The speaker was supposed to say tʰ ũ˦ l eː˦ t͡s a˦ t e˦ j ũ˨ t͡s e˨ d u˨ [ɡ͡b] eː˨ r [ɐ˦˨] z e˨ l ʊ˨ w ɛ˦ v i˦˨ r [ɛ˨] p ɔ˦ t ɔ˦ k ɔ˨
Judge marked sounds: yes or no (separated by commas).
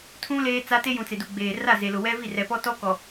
yes, no, yes